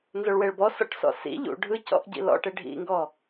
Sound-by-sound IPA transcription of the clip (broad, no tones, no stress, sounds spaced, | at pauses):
n z o ɭ w e ɭ b ɔ s ɔ̰ ʈ s ɔ̰ s ḭ ʎ ṵ ɖʱ ɯ c ɔ̰ ʔ ɟ ḭ l ɔ̰ ʈ e ɖʱ ḭ ŋ ɡ ɔ